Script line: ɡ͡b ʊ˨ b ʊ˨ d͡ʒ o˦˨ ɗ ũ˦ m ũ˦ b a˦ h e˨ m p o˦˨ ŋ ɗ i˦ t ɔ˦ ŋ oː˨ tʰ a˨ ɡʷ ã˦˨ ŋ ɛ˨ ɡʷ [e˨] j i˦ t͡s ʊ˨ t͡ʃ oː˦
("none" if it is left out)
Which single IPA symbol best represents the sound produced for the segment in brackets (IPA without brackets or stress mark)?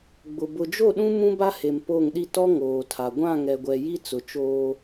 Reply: ɛ˨